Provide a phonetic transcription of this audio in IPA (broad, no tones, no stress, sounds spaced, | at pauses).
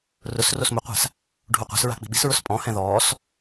r ʊ s r o s m ʊ qʷ a̤ s | ɖʱ u qʷ a̤ s ɹ a̤ k͡p i̤ ɓ i̤ s ɹ ʊ s pʼ ɔ̃ h ɛ̃ ð ɔː s